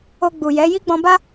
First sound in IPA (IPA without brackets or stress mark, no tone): o